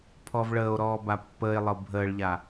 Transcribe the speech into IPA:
pʰ ɔ v ɭ əː o̯ ɾ ɔː b a pː əː e̯ lˠ ɤ bʱ əː ɭ ʎ a

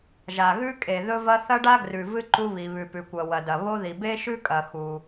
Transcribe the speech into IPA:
ʒ a˩ ɣ ʉ˥ kʼ e˩ ð ɵ˥ v ɐ˥ θ ɐ˥ ɖ a˥ ɡ r ʉ˩ v ɨ˥ ǃ u˥ β i˩ β ʉ˩ p ʉ˩ kʷ ɐ˩ w ɐ˩ d ɐ˩ β o˥ ð i˩ b e˥ ʃ ʉ˥ kʼ ɐ˩ x u˩

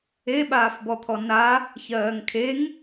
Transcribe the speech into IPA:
e ɓ aː f b ɔ t̪ʰ ɔ n a | ç ɜː ŋ kʰ e ŋ

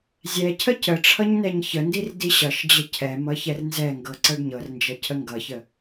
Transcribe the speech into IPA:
zʲ ɛ cʰ ə c ə ʈ͡ʂʰ ʌ ɲ n ɛ ɲ ç ə n d i r d i ɕ ʌ ʃ d͡ʑ ə cʰ ɛ m ʌ ç ɛ r n z ɛ ŋ ɡ ɤ ǀ ɤ ɖ ɲ ɤ r n d͡ʒ ʌ cʰ ə ŋ ɡ ʌ ç ə

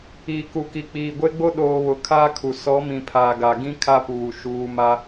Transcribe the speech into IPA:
iː˨ k u˨ k i˨ k͡p iː˨ ɡʷ e˦ ɡ͡b o˦ ɗ oː˨ β ʊ˨ kʰ a˦ kʰ u˨ s ɔ˨˦ m ĩ˨ pʰ aː˨ ɡ a˨ ɡ ĩ˦ kʰ a˦ p uː˨ ʃ uː˨ m a˦

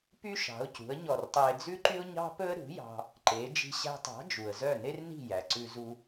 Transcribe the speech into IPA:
p y˥ ʃ ɑ̤˩˥ ʊ̯ c ṳ˩˥ ə̯ ɲ ɔ˥˩ r tˤ æ˥ ɪ̯ d͡z ʉ˥ ǃ y˥ ʊ̯ ɲ ɑ̤˥ p ɵ˥ ə̯ ɾ ṳ˩˥ j ɑ̤˧ | ǃ e˩˥ d͡ʒ i̤˧ ɕ æ̤˧ tˤ ɑ̤˩˥ d͡ʒ u˩ ə̯ z œ˥˩ n e˥ r n i̤˥˩ j æ˩ ǀ ʉ˧ z u˧

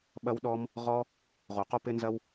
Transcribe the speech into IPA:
ɓ ɐ˦ w ɗ ɔ˦ m | ʁ ɔ˦ | ʁ o˨˩˦ q o˦ p ɪ˦ n z ɐ˦ w

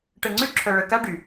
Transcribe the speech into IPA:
ʈ ə˧ ŋ͡ǀ y˥ ǁʰ œ˧ ɭ ə˧ k a˥ ɖ y˩

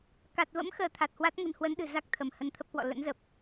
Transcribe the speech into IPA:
k a˨˩ t̚ v ə̰˧˥ m x əː˨˦ t̪ʰ a˨˩ t̚ h w a˦˥ t̚ ŋ ə̤˨˩ n h w ə˨˦ n ɗ ɨ̤˨˩ z a˦˥ k̚ t̪ʰ ə˧˩ m h ə˧ n t̪ʰ ə˦˥ p̚ k w ɔ̰˧˨ l ə̰˧˥ n z ə˨˩ p̚

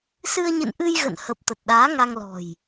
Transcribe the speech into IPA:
s ɨ˧ ə̯ ɲ ɨ̰˧˨ n ʔ ɨ˧ j ɣ ə̰˧˨ n h ə˨˩ p̚ t̪ ə˨˩ t̚ ɗ aː˨˦ ŋ a˧ ŋ l ɔ̤˨˩ j

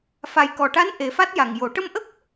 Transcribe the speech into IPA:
f a˨˩ j k ɔ˨˩ ʈ a˧˥ n ʔ e˨˩˦ f a˦˥ t̚ j a˨˩ ŋ j o˨˩˦ ʈ ə˧ m ʔ ə˦˥ k̚

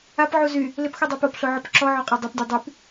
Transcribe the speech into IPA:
a p ʕ u z y | l ɪ p x u dˤ ɛ p o p ɬ o ʕ ɔ p ǁ ɔ ʕ ɔ qʼ ɔ dˤ o p dʲ o dˤ y p

